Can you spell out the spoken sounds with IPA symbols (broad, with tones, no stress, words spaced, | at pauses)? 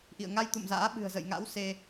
ʔḭ˧˨ə̯ŋa˧jt̪ṵ˧˨mza̰ː˧˥ ɓɨ̤˨˩ə̯zə̰˧˨jŋa̰˧˥w se˧